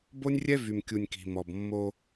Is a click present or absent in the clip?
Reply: absent